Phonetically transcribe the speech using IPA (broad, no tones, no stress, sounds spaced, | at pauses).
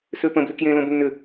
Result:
s ø p ə̃ b l ʏ k j ẽ l õ b nː ʏ